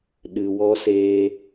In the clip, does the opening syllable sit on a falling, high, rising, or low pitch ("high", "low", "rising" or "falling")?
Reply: low